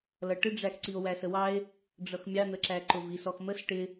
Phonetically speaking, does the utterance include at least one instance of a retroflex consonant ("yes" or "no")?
yes